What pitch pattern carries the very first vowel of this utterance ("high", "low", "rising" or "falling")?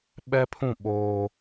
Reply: high